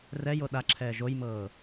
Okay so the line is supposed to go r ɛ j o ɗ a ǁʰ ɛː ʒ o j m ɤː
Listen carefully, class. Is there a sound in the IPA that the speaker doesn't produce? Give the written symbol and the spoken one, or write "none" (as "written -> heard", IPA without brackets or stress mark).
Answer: none